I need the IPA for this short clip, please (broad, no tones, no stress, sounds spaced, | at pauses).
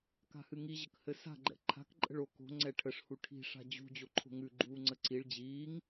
k a̤ h ɨ ŋ i ʑ ə k h ɘ s a̤ ɡ͡ǃ ɛ̰ ǃʰ a̤ k ǃʼ ə̤ ɭ o k o̤ ŋ͡ǀ ɛ ʈʰ ə ʂ h u ʈʰ i̤ ʂ a̤ d͡ʑ ṳ d͡ʑ o ǃʰ o̤ ŋ ʉ ɡ͡ǃ uː ŋ͡ǀ ə ǀ i ɭ d͡ʑ iː ŋ